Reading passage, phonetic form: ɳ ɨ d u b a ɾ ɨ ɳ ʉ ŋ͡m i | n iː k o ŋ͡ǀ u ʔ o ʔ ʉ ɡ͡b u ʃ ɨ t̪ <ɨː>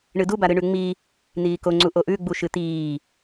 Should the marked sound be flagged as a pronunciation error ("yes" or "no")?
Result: yes